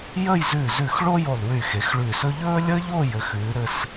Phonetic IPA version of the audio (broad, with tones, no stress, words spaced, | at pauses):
jə˥˧jzʉː˧˩z ʉ˧˩xɭo˥jo˧˩lˠ wy˧˩xe˩˧xɭʉː˧˩sɵ˥ ʎɵː˥lʲəː˥ʎo˥˧ jɘ˩˧xʉː˩˧ɾɘ˧s